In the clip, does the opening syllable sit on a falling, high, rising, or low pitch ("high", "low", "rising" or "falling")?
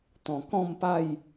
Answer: low